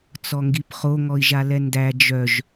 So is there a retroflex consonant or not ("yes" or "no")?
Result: no